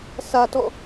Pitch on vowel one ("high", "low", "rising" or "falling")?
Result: high